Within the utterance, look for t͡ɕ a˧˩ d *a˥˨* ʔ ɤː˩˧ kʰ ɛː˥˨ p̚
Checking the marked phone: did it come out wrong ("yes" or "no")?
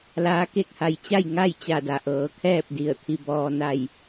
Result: yes